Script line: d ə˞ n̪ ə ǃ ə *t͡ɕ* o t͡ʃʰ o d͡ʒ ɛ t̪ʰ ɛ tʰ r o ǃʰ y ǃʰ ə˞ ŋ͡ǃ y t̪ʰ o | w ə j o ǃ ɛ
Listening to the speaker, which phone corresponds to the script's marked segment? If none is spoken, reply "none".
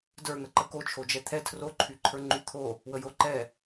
k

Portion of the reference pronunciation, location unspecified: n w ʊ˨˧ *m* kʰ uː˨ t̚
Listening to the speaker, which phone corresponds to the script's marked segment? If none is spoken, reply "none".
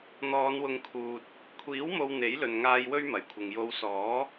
ŋ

